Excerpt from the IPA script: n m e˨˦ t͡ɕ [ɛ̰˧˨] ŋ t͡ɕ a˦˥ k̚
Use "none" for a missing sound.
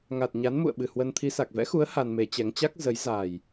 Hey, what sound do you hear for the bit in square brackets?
ɛ˨˦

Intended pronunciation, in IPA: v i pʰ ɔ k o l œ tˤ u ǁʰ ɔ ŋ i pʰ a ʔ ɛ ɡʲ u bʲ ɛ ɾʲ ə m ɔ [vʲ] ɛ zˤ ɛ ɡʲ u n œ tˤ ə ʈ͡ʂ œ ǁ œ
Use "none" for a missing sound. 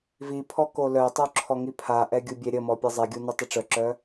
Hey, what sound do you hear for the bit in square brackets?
pʲ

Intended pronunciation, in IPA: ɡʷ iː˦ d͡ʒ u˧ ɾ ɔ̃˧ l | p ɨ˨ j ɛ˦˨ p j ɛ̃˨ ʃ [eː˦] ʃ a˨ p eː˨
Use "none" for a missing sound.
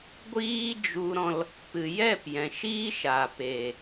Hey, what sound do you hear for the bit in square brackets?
iː˦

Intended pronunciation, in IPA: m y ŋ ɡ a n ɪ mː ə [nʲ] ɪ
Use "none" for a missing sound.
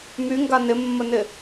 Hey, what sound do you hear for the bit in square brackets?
n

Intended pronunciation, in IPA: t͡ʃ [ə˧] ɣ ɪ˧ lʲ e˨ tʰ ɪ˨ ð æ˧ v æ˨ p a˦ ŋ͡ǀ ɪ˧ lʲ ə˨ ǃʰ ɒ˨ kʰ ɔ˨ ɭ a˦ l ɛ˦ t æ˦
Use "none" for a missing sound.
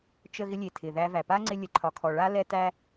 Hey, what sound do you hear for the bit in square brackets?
ə˧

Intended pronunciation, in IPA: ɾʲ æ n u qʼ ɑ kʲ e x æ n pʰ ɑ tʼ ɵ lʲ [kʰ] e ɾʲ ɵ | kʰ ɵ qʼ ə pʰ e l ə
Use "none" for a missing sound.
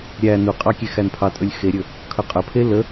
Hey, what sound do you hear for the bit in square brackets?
x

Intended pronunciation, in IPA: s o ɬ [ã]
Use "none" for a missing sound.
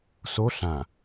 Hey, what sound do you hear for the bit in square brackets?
ã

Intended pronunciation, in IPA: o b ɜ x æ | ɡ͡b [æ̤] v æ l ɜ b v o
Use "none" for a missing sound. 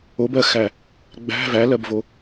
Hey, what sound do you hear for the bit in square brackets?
æ̤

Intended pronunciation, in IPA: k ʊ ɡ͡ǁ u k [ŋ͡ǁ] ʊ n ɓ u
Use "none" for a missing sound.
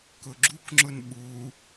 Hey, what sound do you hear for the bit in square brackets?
ŋ͡ǁ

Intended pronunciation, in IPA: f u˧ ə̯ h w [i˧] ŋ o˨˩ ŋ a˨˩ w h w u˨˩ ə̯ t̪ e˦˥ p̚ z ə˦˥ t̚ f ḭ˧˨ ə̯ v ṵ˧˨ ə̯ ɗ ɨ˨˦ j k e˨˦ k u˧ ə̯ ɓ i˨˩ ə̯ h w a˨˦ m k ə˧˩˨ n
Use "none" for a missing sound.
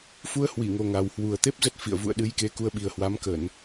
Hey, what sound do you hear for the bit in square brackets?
i˧˩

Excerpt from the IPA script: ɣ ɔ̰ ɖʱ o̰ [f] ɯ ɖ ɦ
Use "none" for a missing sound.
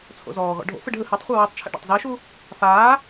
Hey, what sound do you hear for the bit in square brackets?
f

